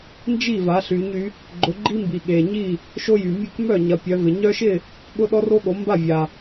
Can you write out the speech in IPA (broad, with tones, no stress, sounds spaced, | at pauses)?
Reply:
n d͡ʒ i˥˨ v a˨˦ ɬ y˨˦ ɲ y˨˦ | ɡ͡ǃ ʊ˨˦ ɡ͡ǃ i˦ m b i˨ ɠ e˨ ɲ i˥˨ | ʃ o˦ j y˨ mʲ e˥˨ k m œ˥˨ ɲ ɐ˨˦ pʲ œ˨˦ v ɪ˨ ɲ œ˦ ʃ ɪ˥˨ | ɠ ʊ˦ ɗ ɔ˦ r o˦ ɠ o˨˦ m b a˥˨ vʲ a˨